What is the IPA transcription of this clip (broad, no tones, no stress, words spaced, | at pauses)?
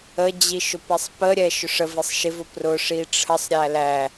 əd͡ʑi ʃʊpɛsˤpəɾʲɛ ʃʊʂəvisˤ ʃɪvʊ prʊ ʂiʈ͡ʂʰəsˤɾʲæ læ